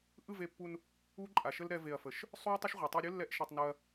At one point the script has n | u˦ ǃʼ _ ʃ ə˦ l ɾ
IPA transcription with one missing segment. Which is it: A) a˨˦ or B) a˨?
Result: B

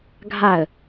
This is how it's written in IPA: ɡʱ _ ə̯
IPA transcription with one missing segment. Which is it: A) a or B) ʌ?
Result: A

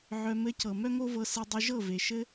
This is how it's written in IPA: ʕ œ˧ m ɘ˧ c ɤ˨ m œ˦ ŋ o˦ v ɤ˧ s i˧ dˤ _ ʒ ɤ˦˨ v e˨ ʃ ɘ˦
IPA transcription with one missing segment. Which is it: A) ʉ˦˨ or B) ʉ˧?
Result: B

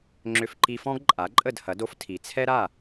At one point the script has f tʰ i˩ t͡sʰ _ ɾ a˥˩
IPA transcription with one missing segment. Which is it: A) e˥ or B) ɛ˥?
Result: B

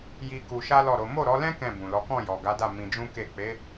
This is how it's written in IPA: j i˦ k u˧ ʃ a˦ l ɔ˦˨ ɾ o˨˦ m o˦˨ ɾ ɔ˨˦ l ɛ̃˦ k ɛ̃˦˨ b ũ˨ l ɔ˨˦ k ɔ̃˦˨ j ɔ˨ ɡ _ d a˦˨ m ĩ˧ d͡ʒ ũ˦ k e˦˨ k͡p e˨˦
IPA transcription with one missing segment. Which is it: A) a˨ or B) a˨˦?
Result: B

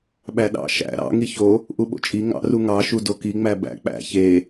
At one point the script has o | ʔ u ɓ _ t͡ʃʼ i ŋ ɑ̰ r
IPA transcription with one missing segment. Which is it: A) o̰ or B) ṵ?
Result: A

